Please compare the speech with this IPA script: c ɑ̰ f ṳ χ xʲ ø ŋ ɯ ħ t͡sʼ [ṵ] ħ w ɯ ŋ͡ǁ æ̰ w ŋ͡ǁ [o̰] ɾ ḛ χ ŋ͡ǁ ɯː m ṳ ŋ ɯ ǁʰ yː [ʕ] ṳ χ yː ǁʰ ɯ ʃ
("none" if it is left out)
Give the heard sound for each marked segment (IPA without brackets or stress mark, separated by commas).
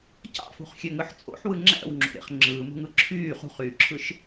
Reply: o̰, o̰, χ